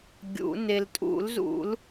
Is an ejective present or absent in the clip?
present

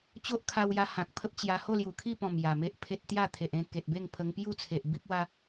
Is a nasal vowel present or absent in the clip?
present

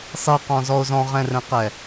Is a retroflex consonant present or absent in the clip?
absent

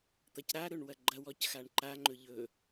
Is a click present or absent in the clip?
present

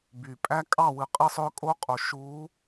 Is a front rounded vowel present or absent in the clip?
present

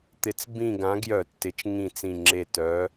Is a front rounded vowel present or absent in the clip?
present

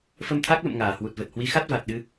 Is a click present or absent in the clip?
absent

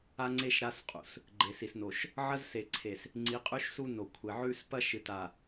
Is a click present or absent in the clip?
present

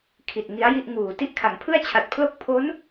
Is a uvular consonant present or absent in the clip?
absent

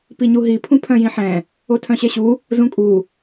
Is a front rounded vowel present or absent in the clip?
present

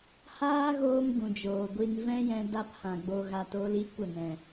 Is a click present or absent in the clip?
absent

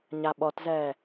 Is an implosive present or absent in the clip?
present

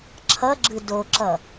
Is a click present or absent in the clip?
present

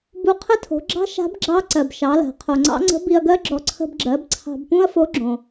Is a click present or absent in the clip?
present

